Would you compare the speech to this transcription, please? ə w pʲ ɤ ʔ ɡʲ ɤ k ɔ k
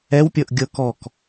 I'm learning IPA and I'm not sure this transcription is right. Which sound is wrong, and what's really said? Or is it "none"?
ə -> ɛ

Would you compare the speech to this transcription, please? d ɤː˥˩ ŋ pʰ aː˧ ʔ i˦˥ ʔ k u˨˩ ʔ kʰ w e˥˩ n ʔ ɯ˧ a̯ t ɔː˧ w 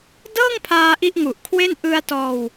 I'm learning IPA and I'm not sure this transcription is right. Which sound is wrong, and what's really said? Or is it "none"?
k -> ŋ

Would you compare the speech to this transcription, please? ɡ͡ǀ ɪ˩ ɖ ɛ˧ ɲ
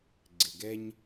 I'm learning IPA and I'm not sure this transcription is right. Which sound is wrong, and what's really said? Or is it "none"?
ɖ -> ɡ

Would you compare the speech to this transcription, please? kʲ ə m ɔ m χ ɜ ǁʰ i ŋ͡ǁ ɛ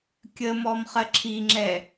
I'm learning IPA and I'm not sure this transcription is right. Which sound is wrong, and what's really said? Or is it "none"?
none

